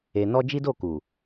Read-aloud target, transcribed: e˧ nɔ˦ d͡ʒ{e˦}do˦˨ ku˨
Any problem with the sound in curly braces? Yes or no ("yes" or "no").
yes